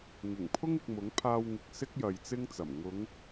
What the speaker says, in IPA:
ŋ ɪ˨˩ ŋ pʰ ʊ˥ ŋ ɪ˨ k̚ m ʊ˨˥ ŋ pʰ aː˧ w ŋ ɪ˨ k̚ s ɪ˥ k̚ j ɐ˨ j t͡s ɪ˥ ŋ t͡s ɐ˨˩ m ŋ ʊ˨˧ ŋ

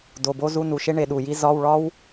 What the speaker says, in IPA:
d o˩˧˩ b o˥ z u˧˥˧ n u˩˧˩ ʃ e˥ ɳ e˩˧ ɗ u˩ j i˥ z ɒ˧˥˧ w ɭ ɒ˥ w

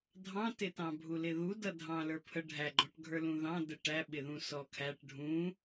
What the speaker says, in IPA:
dʱ ɑ̃ t ɪ t ɑ̃ bʱ u l ɪ ð u d ʌ dʱ ɑ̃ l ə˞ pʰ ə ɖʱ æ ɡ͡ǃ ɔ ʈ ɡʱ ə˞ l ũ ð ɑ̃ d ə ʈ æ ɓ ɪ ð ũ s ɔ kʰ æ ʈ ɖʱ ũ

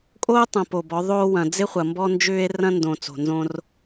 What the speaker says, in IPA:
kʼ oː˦ tˤ ɐ̃˨ p o˨ b ɔ˨˦ ðˤ oː˦ w ɐ̃˨ d͡z ɪ˦ χʷ ɐ˨ m b ɔ˦ n d͡ʒ ʏː˦ e̯ r ɐ̃˦ n d õ˨ t͡s o̤˨ n z õ˦ r

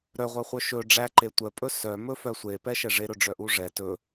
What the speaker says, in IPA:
ɾ œ ʁʷ œ χʷ œ ʃ ɵ ɖ͡ʐ æ ǃ e tʷ œ pʼ ɵ s œ m ɵ f œ sʷ e p ɛ ʃ ɛ ʐ e ɾ ɵ ɖ͡ʐ œ ʔ u ʐ ɛ t ɵ

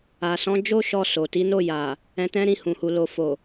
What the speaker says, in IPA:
a˨ s ɔ̃˨˦ d͡ʒ o˦ ʃ ɔ˧ s o˨ t i˨˦ n o˦˨ j a˨ | ɛ̃˧ t ɛ̃˦ ɾ ĩ˦˨ h ũ˨ h u˨ l o˨ f o˨

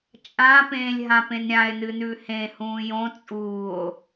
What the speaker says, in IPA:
t͡ʃʼ ã p ẽː lʲ ɦ ã p ẽ n ɾʲ ã e̯ n ɨ n ʉ h ẽ h ũː j õ t͡sʼ uː o̯

